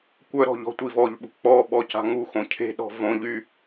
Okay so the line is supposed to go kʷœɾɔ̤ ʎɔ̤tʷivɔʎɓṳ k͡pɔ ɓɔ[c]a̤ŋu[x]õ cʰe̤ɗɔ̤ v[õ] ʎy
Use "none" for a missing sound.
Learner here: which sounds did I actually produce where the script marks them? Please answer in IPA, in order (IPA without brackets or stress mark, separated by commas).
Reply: c, x, õ